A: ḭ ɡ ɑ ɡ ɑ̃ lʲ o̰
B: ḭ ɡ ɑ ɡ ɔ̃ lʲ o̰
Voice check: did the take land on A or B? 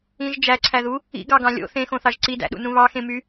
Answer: A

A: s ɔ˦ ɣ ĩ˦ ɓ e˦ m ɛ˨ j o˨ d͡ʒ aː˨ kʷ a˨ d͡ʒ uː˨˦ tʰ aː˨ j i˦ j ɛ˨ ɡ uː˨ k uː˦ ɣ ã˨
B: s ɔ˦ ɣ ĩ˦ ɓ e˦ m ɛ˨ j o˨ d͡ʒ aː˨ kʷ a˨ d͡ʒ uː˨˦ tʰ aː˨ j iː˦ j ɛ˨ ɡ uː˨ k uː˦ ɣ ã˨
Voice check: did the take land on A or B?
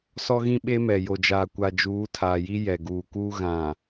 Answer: A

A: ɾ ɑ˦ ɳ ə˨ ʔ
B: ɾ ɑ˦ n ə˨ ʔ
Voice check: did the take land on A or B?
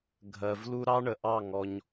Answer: A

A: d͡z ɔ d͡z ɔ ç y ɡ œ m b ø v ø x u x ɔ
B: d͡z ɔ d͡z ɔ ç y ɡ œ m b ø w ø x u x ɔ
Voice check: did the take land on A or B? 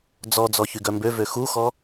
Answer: A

